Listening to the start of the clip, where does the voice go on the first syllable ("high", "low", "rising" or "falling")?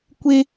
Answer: high